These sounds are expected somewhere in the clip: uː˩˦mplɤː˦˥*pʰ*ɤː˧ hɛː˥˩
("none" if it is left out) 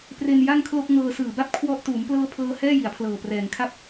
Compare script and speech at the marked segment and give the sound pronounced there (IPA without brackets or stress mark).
pʰ